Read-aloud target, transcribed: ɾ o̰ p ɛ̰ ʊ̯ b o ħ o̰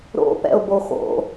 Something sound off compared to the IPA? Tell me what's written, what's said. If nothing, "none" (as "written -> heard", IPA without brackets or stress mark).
ħ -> x